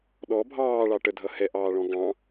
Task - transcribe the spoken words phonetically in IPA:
ɗ ɔ bʱ ɑː ɭ ɑ ʈ ə dʱ ʌ h ɛ ʔ ɑː ɭ ɔ̃ ɡ ɑ̃

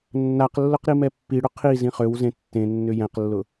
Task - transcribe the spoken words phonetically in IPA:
nː a q lː ʊ q ɾ i m ɛ pː i ɽ ʊ qʰ i z ĩ χ ø w z ẽ tː ẽ nː ʏ j ɛ̃ q lː ʊ

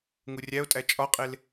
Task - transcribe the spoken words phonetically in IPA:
ŋ u rʲ æ o̯ tʼ æ t͡ʃʼ ɒ qʼ e l

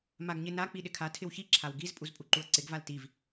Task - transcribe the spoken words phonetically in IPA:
m a ɡ ɲ ɪ n a k͡p i ɗ ɪ kʰ a tʰ ɪ w ç i ǁʰ a w ɡ i z pʼ u z pʼ u ǃ u ɐ̯ ǀ ɪ ɡ v a l t i v

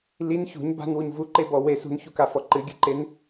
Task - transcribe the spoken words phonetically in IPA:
l i n ç ṳ ɲ b a̤ n w u ɲ v u ǃ e b ɔ w e s ṳ n ç u k a f ɔ ǃ ɨ ɡʲ ɨ ǃ e n

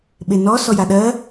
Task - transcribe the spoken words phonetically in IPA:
ɓ e n ɔ s ɔ j a ɗ ɜ

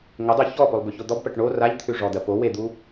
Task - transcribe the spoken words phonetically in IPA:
ŋ ə dˤ o ç ɔ p o lˠ b ʉ ç o d̪ ɔ b p ɜ ʈ ɳ o r a ʎ t̪ʰ ʉ ʐ ɔ d̪ ɜ p o w e d̪ u

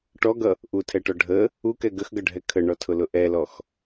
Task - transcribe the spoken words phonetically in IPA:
ʈ ɔ ɡ ʌ | ʔ u tʰ ɛ ʈ ɔ ɖʱ ə | u k ɛ ɡ ə x ɡ ʌ ɖʱ ɛ kʰ ə ɳ ɔ tʰ ʊ l ʊ ʔ ɛ l ɔ x

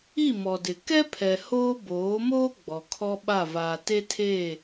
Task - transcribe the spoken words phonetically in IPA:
i˦˨ m ɔ˨ d ɪ˨ k ɛ˦ pʰ ɛ˨ h oː˦ b oː˨˦ m oː˦ ɡ͡b ɔ˨ kʰ ɔ˦ ɓ a˦˨ v aː˨ t e˦ tʰ eː˦˨

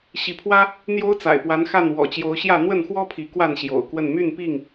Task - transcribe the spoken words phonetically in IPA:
ɕ i˨˦ pʰ w ä˦ | n̪ j o˦ ʊ̯ t͡s a̰˨˩ ɪ̯ p w a˨˦ n x a˥˨ n w ɔ̰˨˩ t͡ɕ j o˨˦ ʊ̯ ɕ j ä˥˨ n̪ w ə˥˨ n x w ɔ˦ pʰ i˨˦ k w a˥˨ n ɕ j o̰˨˩ ʊ̯ k w ə˥˨ n m y˥˨ n p i˥˨ ŋ

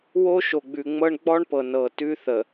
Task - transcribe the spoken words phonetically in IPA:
w o˦ ʃ o˨ ɡ͡b ʉ˨ ŋ͡m ɤ˦ ɳ ɡ͡b ɔ˦ ɳ p ɤ˨ n ɤ˨ t ʉ˦ θ ə˨

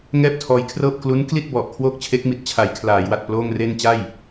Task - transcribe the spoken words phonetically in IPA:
ŋ ɛː˥˩ p̚ tʰ ɔː˧ j kʰ r ɤː˥˩ p̚ k l u˦˥ n k l i˥˩ t̚ b ɔ˨˩ ʔ kʰ w oː˥˩ k̚ t͡ɕʰ e˦˥ k̚ m i˨˩ t̚ t͡ɕʰ a˩˦ j kʰ l aː˩˦ j w a˨˩ t̚ p l oː˥˩ ŋ r e˥˩ n t͡ɕ a˥˩ j

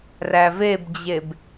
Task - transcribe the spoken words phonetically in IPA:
r æ v e b d͡ʑ e b

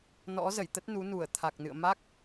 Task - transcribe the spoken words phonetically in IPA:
n ɔ̰˧˥ z ə˧˩ j t̪ ə˦˥ t̚ n u˨˦ n u˧˩ ə̯ t̪ʰ a˨˩ k̚ n ɨ̰˧˨ ə̯ m a˦˥ k̚

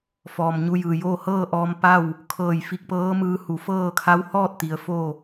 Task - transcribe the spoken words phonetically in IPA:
f ɔː˩ m ɲ u˧ j ɯː˩ j oː˥˨ h ɤː˥˨ ʔ ɔː˧ m p a˥˨ w | kʰ ɤː˧˩ j f i˧ k̚ p ɤː˧˥ m ɯː˧ h u˩˧ f ɤː˥˨ kʰ a˧˥ w h ɔː˥˨ t̚ t̪ i˩˧ ə̯ f o˥˨

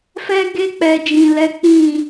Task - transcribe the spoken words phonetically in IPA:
f ɛ˧ ɡ e˧ k͡p ɛ˨ d͡ʒ ĩ˨ l ɛ˨˦ k͡p ĩ˦˨

